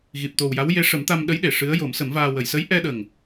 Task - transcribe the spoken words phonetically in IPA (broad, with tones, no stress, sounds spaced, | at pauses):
ɣ i˨˩ p̚ t̪ o˨˩ w j a˧˥ w j e˧˥ ʂ ə˨˩˦ m t̪ a˧ m ɗ ə˧˥ j ɗ e˨˩˨ ʂ ɨ˧˥ ə̯ j o˨˩˦ m s ə˨˩˦ m v aː˧ w ə˨˩˨ j s ə˧˥ j ʔ ɛ˧ ɗ ə˨˩ ŋ